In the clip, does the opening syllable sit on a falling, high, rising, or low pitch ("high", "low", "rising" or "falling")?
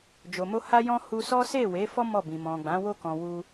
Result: low